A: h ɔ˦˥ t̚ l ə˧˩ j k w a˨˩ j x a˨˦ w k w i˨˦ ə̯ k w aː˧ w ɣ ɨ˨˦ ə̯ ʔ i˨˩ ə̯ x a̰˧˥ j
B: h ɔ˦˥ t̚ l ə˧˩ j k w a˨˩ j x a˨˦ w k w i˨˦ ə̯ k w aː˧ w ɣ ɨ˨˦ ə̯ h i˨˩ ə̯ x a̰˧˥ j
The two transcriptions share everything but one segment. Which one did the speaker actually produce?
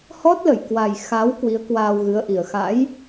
A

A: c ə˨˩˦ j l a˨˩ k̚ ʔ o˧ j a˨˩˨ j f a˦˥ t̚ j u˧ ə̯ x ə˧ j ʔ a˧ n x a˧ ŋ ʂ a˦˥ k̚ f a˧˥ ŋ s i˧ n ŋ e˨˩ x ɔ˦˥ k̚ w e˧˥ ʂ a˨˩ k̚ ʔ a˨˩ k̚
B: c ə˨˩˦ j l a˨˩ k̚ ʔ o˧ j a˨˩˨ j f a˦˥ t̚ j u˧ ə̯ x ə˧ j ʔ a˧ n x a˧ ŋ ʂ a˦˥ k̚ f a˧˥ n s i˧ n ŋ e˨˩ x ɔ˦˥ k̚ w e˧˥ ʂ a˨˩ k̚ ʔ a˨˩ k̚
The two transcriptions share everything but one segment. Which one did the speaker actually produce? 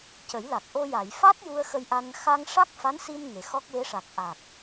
B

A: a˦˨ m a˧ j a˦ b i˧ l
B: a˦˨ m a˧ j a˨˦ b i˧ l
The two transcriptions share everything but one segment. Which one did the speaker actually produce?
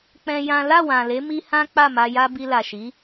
A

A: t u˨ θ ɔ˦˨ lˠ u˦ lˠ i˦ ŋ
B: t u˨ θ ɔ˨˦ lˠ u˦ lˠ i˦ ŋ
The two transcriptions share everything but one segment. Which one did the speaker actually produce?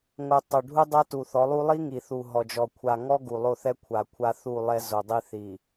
B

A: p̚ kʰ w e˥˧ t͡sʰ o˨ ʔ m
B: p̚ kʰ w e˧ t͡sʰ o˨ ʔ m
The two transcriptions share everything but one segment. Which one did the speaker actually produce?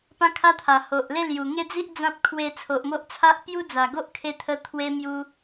B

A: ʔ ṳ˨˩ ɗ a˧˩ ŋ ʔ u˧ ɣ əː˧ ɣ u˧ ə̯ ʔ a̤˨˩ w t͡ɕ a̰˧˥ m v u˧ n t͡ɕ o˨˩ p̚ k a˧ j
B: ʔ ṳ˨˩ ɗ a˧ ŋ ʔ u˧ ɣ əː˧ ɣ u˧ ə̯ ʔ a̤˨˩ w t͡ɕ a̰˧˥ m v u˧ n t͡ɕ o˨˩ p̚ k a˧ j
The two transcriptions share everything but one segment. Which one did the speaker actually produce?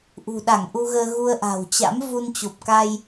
A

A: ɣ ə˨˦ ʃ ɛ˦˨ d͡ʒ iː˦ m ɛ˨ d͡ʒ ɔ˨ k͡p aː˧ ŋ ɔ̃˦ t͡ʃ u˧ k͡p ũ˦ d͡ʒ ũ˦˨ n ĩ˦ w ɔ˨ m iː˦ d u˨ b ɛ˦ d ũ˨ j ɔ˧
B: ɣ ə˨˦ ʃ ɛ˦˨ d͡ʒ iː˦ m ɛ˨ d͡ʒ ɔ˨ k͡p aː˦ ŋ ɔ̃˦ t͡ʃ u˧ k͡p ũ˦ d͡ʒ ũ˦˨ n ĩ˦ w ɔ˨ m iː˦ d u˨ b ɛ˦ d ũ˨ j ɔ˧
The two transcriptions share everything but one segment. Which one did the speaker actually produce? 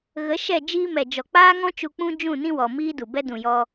B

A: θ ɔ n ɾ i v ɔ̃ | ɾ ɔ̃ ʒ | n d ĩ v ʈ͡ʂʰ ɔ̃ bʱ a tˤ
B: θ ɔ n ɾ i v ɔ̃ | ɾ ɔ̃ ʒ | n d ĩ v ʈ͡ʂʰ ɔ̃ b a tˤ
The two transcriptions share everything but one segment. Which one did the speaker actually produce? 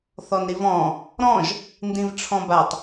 B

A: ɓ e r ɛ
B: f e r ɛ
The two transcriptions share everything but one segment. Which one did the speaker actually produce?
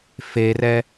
B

